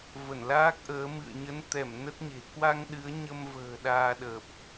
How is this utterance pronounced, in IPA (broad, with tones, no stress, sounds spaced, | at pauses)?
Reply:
v ə˧˩ n l aː˦˥ k̚ ʔ əː˨˦ m ɨ̰˧˨ ə̯ ɲ ə˨˦ n t̪ ɛ˧˩ m n ə˦˥ t̚ ɲ e̤˨˩ k w a˧ ŋ ɗ ɨ˨˦ ə̯ ɲ ə˧ m v ə̤ː˨˩ ɗ aː˧ ɗ əː˨˩ p̚